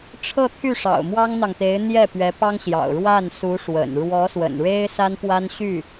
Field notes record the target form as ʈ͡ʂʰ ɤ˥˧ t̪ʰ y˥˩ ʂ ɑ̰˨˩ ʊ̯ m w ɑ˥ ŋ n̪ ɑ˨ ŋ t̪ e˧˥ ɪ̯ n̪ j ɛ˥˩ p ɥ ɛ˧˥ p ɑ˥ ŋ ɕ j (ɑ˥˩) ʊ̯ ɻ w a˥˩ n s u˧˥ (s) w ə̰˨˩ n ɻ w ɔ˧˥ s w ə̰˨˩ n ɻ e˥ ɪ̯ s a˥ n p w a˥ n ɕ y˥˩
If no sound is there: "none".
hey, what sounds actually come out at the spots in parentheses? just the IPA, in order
ɑ̰˨˩, ʂ

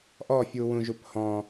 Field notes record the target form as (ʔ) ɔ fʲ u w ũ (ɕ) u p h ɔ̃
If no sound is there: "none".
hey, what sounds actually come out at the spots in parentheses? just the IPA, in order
ʔ, ʒ

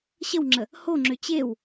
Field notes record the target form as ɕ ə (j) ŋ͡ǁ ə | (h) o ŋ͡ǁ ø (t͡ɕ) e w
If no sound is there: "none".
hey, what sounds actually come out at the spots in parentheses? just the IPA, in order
w, h, t͡ɕ

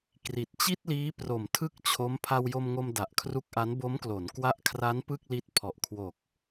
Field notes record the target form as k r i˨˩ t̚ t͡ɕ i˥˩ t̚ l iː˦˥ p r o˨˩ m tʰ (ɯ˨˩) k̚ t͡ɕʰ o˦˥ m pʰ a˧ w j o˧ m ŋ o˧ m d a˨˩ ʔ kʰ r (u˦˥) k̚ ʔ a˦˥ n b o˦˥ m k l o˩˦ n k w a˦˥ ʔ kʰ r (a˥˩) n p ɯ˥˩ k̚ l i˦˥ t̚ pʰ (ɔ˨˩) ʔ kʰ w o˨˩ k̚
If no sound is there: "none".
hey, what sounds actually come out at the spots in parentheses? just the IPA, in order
ɯ˥˩, u˦˥, a˦˥, ɔ˨˩

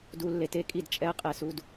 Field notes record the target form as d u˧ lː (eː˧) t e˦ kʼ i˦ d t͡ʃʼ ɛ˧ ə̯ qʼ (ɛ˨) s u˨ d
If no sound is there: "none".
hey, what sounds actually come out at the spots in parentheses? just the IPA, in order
e˧, ɛ˨

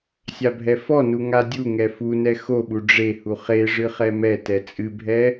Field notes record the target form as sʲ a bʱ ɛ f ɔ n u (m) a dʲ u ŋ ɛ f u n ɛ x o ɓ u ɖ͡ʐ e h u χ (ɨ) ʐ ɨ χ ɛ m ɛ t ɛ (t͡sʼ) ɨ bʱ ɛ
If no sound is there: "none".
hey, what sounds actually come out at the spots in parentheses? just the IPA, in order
ŋ, e, t͡sʼ

